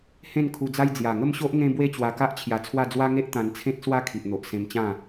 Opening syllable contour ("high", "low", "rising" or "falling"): falling